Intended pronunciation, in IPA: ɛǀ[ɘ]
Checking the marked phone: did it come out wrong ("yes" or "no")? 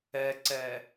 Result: yes